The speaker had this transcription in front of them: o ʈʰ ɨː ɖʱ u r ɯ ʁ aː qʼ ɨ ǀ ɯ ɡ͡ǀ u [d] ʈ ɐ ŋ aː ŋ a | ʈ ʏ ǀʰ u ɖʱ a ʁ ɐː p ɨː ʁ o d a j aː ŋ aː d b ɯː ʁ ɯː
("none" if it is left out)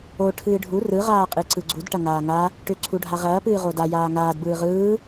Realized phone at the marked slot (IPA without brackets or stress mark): d